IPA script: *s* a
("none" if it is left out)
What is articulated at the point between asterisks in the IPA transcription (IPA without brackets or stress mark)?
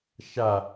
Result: ʃ